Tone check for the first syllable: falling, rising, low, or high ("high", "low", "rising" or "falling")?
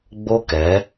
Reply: high